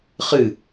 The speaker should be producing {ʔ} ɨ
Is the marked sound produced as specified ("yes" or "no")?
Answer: no